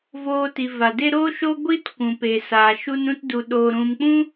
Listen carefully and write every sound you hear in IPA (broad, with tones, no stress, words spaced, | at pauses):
voː˧ ti˨va˨de˦ ɾo˦ʃo˦ ɡʷi˦t kʷũ˨pe˨saː˨ ʃu˧nũ˧tdu˨ ɗoː˨ɾũ˨mk͡pũ˦